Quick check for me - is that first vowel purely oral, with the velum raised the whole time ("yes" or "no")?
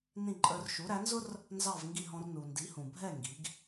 no